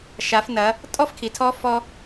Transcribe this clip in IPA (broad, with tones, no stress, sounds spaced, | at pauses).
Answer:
ʃ a˩˧ f n ɐ˩˧ | tʼ ɔ˥ f kʰ i˩ tʰ ɔ˧˥ f ɔ˧